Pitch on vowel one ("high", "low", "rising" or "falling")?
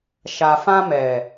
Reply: low